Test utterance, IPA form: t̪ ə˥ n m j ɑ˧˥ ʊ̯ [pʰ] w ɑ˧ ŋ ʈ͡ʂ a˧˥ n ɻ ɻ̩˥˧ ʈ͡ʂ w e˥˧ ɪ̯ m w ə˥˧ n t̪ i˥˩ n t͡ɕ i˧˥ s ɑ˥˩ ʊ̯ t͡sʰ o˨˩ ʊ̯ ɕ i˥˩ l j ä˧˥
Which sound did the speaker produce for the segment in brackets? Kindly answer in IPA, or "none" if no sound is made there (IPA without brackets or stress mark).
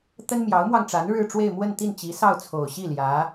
m